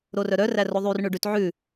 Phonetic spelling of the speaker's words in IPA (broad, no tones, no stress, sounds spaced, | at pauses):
ɾ o r œ ɾ œ r æ r o ðˤ y r ɳ ʉ ɖ ʉ t ʕ ʉ